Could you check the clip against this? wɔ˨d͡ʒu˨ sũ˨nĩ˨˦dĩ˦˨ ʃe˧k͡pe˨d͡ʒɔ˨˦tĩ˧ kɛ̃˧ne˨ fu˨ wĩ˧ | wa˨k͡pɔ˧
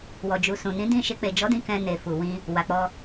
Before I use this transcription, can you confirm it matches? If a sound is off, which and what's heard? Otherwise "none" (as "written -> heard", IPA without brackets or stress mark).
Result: t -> d